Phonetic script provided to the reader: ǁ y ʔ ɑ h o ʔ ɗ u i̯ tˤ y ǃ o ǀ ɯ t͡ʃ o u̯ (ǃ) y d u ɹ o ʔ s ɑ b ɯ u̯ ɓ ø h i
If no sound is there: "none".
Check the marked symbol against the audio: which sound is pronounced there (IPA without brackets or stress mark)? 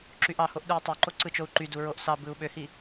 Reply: ǃ